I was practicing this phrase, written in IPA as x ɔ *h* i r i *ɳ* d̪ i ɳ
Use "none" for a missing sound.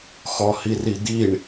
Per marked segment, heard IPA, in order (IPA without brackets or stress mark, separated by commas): h, none